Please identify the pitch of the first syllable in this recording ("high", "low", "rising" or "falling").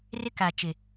high